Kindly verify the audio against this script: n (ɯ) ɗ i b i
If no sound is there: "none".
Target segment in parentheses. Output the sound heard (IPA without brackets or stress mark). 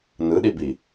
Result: ɯ